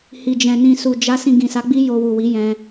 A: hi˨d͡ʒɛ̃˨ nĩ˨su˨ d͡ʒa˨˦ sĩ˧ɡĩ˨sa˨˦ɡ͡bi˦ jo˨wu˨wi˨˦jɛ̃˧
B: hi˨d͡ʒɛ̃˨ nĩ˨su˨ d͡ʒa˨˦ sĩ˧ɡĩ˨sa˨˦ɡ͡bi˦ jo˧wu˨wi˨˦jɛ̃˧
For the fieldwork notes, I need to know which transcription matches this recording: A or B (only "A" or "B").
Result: B